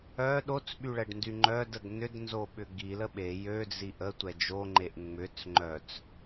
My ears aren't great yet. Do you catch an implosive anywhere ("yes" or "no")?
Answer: yes